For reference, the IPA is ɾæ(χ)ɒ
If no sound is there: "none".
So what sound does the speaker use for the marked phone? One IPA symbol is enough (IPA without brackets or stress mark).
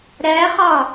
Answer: χ